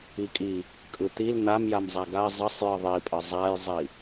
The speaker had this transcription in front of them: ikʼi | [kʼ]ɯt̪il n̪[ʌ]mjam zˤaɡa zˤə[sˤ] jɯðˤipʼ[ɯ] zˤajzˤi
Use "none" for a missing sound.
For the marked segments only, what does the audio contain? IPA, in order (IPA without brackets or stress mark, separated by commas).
kʼ, a, sˤ, ə